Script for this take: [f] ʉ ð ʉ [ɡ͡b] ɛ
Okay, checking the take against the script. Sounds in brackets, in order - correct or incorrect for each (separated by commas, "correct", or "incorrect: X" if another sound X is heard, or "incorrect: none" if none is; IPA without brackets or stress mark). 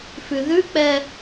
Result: correct, incorrect: k͡p